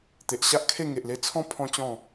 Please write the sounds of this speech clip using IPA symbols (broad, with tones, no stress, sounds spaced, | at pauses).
t̪ e˨ ʔ ɕ a˦ ʔ kʰ e˥˧ ŋ e˨ ʔ l e˧ t͡sʰ ɔ̃˦ pʰ ɔ̃˦ t͡ɕ ɔ̃˥˧